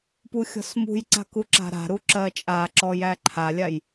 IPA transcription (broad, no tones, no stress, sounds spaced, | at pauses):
p u xʲ ɔ̤ s m ṳ j ǀ a̤ k u ǁ a̤ ɾ a̤ ɾ u ǁ ɜ t͡ʃʼ a ǁ ɔ j æ ǃʰ a lʲ a j